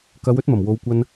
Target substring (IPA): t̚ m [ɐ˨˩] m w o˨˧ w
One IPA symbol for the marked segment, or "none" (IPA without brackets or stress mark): ɐ˨˩